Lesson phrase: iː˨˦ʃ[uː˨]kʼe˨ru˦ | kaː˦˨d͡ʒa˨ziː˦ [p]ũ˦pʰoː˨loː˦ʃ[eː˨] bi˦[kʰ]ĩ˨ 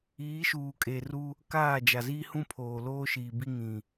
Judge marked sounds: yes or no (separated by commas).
yes, no, no, no